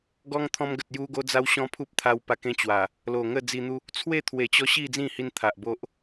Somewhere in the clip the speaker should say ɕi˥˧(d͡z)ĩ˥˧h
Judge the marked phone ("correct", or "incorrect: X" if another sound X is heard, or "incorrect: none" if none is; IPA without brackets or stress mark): correct